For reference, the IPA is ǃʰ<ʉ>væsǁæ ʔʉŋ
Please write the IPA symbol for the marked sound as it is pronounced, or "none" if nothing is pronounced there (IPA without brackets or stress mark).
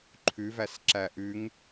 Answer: ʉ